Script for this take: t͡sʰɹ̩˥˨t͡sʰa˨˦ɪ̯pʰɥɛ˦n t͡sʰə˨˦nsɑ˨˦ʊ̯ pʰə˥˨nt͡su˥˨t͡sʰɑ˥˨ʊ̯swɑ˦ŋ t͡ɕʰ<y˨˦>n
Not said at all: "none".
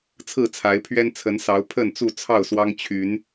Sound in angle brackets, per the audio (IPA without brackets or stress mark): y˨˦